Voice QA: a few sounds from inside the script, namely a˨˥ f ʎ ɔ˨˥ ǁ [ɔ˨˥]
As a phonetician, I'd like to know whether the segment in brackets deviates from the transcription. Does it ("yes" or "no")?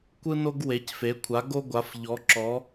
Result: no